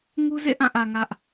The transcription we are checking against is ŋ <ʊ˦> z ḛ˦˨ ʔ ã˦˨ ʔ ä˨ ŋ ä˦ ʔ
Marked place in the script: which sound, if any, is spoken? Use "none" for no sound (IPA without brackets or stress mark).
u˦